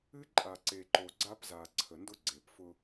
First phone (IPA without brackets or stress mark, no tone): ɨ